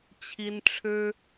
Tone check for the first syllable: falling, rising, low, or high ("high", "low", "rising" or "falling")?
high